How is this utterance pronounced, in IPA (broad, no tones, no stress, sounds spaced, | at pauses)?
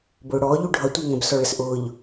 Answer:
b ʊː ɽ ɔː ʎ u ɖʱ ʌ tʷ ə˞ ŋ ə̃ b s ɔ ɭ ə s ʔ ʊː ʎ